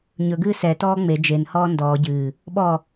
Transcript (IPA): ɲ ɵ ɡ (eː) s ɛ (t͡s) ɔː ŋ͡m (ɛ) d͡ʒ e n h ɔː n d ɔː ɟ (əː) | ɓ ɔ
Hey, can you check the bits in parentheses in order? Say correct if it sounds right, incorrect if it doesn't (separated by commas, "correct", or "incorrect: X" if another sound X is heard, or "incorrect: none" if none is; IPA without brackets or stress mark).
incorrect: ɨː, incorrect: t, incorrect: e, incorrect: ɨː